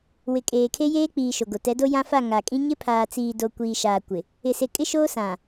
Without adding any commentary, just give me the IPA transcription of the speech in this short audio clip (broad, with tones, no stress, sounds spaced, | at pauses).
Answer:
w ɪ˨ kʼ eː˨ kʰ e˦ j eː˦ k͡p iː˨ ʃ o˨ ɡ o˨ t ɛ˨˦ d o˦ j ã˦ f a˦˨ ŋ a˨ kʼ ĩ˦ ɲ ɪ˦ pʰ aː˨ t͡s iː˨ d o˨ kʷ iː˨ ʃ aː˨ kʷ ɪ˨ | ɪ˨ s e˨ kʼ ɪ˦ ʃ oː˦ s ã˨